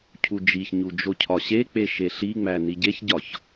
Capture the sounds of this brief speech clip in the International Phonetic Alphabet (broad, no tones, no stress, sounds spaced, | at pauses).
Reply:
cʰ u d͡ʒ i ç ɲ u d͡ʒ o cʰ ɒ ɕ e k͡p e ʃ e ɬ i ŋ͡m æ n i ɟ e ç ɟ ɒ ç